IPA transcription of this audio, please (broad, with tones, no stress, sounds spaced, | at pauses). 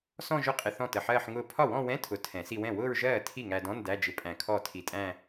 s ɔ̃˥˧ ʒ ʊ˥˧ qʼ ɪ˧ θ ɔ̃˥˩ t ə˧˩ ħ ɜː˥˧ ħ ŋ ʊː˥˩ pʰ ɒ˥˩ w ɔ̃˥˧ w ɛ̃˧˥˧ tʰ ʊ˨˩˦ tʰ ɛ̃˨˩˦ s i˧ w ɛ̃˥˩ w ʊː˥˧ ɹ ʒ ɜː˥˩ tʰ i˥˩ ŋ æ˧ d ɔ̃˧˥˧ n d æ˧˥˧ d͡ʒ ɪ˧ pʼ æ̃˧˩ kʰ ɔ˥˩ tʰ i˧˩ tʼ æ̃˥˧